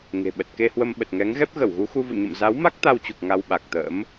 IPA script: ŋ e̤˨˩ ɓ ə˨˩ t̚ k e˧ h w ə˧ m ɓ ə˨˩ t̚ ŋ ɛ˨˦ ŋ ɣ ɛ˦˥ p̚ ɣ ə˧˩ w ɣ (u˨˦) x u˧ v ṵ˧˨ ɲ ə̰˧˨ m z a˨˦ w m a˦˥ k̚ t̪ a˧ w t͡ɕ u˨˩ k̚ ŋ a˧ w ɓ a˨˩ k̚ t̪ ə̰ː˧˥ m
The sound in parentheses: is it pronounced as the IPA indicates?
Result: yes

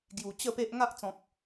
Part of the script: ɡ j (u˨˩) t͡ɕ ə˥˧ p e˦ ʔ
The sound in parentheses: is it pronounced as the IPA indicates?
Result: yes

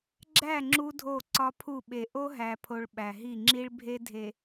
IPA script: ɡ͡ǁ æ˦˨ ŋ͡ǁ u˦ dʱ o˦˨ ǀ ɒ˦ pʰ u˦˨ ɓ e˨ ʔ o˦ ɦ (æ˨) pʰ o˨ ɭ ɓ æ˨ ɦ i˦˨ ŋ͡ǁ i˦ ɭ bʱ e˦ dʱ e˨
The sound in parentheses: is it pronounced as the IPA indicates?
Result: yes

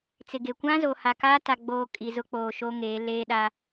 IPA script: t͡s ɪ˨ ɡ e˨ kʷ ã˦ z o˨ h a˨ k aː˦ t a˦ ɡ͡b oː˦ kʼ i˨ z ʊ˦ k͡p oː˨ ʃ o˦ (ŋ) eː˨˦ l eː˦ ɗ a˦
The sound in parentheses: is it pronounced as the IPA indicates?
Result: yes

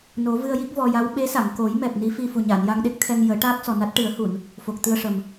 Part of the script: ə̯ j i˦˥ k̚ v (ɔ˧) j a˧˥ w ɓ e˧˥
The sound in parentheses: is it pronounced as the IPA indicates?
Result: yes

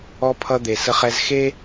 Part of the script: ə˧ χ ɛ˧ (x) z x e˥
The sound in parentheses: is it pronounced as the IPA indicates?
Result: no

